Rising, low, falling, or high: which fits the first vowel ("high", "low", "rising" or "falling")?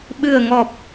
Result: low